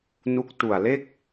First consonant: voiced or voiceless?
voiced